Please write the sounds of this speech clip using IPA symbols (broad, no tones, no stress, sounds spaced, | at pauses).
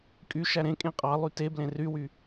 kʼ y ʃ æ ɾ ẽ kʼ ẽ qʼ ɑ lˠ y t e b l ẽ r y w y